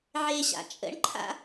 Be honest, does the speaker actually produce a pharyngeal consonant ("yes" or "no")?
yes